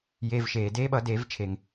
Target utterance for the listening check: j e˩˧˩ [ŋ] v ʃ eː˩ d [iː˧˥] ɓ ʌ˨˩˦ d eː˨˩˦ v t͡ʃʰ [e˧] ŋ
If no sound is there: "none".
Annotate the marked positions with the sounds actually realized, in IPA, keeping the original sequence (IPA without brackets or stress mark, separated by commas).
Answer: none, eː˧˥, e˩